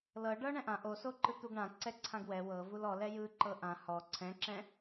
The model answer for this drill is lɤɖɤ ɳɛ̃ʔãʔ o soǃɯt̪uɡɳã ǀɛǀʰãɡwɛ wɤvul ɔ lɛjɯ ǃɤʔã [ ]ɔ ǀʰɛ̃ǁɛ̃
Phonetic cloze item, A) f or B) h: B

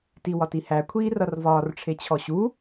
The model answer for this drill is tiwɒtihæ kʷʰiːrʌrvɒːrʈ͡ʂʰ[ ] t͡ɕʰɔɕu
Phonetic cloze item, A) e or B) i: A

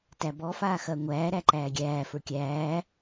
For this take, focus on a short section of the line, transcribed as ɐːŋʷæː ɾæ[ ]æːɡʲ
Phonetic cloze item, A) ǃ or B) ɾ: A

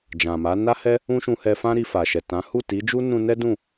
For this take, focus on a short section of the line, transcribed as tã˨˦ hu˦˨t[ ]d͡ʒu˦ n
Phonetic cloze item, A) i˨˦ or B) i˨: A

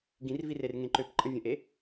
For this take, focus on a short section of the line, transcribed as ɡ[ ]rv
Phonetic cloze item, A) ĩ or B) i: A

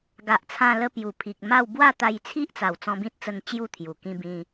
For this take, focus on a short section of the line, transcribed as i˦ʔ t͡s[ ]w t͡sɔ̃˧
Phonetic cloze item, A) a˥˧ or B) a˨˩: B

